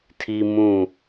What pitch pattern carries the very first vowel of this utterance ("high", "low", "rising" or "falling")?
high